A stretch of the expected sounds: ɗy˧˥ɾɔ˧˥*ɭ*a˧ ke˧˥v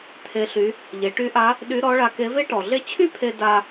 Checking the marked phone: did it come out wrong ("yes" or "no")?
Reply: no